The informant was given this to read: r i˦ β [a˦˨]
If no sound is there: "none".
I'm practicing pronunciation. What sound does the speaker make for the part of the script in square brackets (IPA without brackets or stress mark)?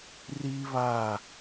a˦˨